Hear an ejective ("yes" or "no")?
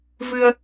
no